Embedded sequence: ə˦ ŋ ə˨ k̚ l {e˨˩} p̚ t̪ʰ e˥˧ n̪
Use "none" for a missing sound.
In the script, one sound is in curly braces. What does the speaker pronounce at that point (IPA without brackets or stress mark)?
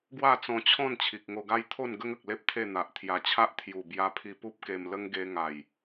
e˦